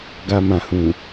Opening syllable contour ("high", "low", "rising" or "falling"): low